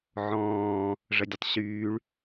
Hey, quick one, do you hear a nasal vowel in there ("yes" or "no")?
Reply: yes